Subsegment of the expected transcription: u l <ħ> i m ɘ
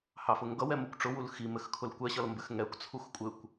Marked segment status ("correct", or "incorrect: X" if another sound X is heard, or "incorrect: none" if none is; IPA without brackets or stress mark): incorrect: x